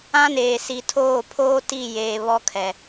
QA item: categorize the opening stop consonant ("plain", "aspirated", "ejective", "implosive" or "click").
aspirated